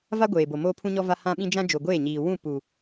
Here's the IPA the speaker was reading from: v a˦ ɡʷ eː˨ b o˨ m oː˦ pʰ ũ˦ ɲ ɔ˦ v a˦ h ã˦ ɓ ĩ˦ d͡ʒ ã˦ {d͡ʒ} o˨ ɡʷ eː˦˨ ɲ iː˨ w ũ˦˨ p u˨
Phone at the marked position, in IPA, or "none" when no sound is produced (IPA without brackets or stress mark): d͡ʒ